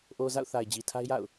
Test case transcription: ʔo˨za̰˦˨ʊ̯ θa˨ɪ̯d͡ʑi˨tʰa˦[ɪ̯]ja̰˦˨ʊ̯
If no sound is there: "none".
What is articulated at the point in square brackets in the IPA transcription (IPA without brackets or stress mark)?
ɪ̯